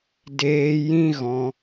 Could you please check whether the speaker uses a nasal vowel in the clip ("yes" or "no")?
yes